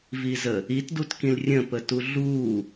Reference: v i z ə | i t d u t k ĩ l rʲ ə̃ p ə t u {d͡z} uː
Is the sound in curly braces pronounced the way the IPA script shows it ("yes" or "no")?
no